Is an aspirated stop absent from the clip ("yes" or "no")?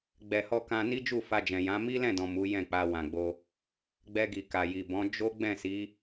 yes